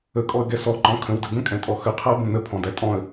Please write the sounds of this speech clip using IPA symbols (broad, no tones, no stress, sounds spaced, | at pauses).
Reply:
ə kʼ ɔ ə̯ ɡ ɛ s ɔ ǃ ɔ̃ kʰ ə̃ w d ə ɡ ə̃ kʼ ɛ̃ tʼ ɔ x ə qʰ æ b ə̃ n ə pʰ ɔ̃ d æ tʼ ɔ̃ ə̯